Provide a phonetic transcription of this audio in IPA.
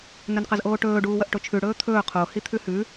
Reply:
n ɵ n q ɐ z ʔ oː ʈ ɵː ɖ uː w ɐ ʔ ʈ o t͡ʃʰ ʉ ɽ ɵː t̪ʰ ɵː qʰ o h i t̪ʰ ʉ h ʉ

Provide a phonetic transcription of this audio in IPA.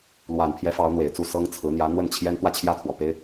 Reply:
l w a˨˩ n pʰ j ɛ˧˥ f ɑ˧˥ ʊ̯ n̪ w e˨˩ ɪ̯ t͡s u˥˩ s ɤ˥ ŋ t͡sʰ ɹ̩˧˥ n̪ j ä˧˥ n̪ w ə˥˩ n t͡ɕʰ j ɛ˥ n t̪ w ä˥˧ t͡ɕʰ j ä˥˩ t̪ʰ w ɔ˨˩ p e˥ ɪ̯

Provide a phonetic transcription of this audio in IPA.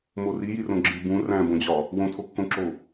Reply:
m o r i j i r õ ɡ͡ǁ i b ũ r æ̃ b õ d͡ʑ ɒ | w õ tʰ o kː õ ǁ o

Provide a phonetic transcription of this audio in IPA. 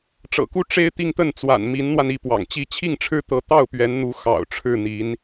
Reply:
ʈ͡ʂ ɤ̰˨˩ k u˥˩ ʈ͡ʂ e˥ ɪ̯ t̪ i˥˧ ŋ t̪ ə˥˩ n t͡s w a̰˨˩ n m i˧˥ n n̪ w a˧ n i˥˩ p w ɑ̰˨˩ ŋ t͡ɕ i˥ t͡ɕʰ i˥˩ ŋ ʈ͡ʂʰ ɻ̩˥ t̪ ɤ˧˥ t̪ ɑ˥˩ ʊ̯ p ɥ ɛ˧˥ n n̪ u˧˥ x ɑ̰˨˩ ʊ̯ ʈ͡ʂʰ ɻ̩˥˩ n̪ i˧˥ n

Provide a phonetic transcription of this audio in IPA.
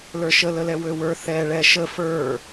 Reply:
l ə˞ ʃ ə l ə l ɛ w ø w ə˞ θ ɛ ɭ ɛ ʃ ə f ə˞

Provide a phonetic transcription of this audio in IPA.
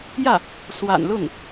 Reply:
j ä˥˩ | s w a̰˨˩ n l ʊ˥˩ ŋ

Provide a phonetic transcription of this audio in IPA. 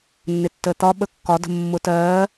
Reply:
nː ɪ tː əː t̪ ɒ ɓ ə kː ɒ d ə̤ mː ʊ t ɜː

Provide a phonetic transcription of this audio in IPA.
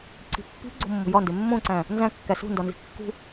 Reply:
ǀ i̤ pː i̤ ɡ͡ǀ o̤ mː o̤ j ɒ n d e mː õ ǀ æ̃ | n z æ̃ kː æ s ṳ n d ɒ n z i̤ kː ṳ

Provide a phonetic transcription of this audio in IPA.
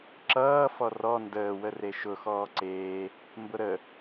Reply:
ǁ ʌː f ɔ r ɔ n d əː w ə r e ʃ ʊ x ɔː ǀ eː | m b ʊ ɾ ə

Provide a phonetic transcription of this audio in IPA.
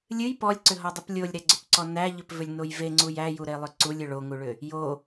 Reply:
lʲ ɨ j p ɔ lʲ ǀ ʏ ɦ ɔ dˤ ʏ p lʲ o lʲ ɾ æ ɡ͡ǀ ʏ p ǀ ɔ n æ ʎ ʏ p v ʏ lʲ n o j v e ŋ͡ǀ u j æ j u ɾ e lˠ ʏ ǀ u lʲ ʏ ɭ o ŋ u ɭ ʏ | j o

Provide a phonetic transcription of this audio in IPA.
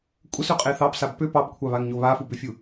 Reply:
kʷʼ ə s ʉ qʼ e θ ɑ p s a b p ʏ p ɑ b kʷʰ ɑ β a ŋ ɲ o β a f u b ʏ fʲ u

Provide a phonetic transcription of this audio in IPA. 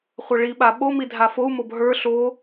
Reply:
χʷ a ɭ i ɓ a ɓ o m i dʱ a f o u̯ m o b ɦ ə˞ ɬ o

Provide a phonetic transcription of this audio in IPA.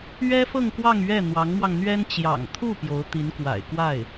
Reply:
ɥ ɛ˥ f ɤ˥˧ ŋ k w ɑ˥˧ ŋ ɥ ɛ˥˩ n̪ w ɑ˧˥ ŋ m w ɑ˧ ŋ n̪ ɥ ɛ˥ n t͡ɕ j ɑ̰˨˩ ŋ t̪ʰ u˥˩ p j o˧˥ ʊ̯ t̪ i˧˥ n k w a̰˨˩ ɪ̯ k w a˥˩ ɪ̯

